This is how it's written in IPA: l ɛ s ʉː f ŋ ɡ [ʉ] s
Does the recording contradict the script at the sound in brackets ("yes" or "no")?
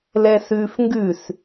no